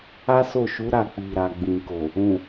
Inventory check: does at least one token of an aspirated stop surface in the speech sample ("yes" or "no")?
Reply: no